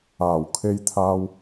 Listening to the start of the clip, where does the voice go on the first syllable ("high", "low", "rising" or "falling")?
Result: low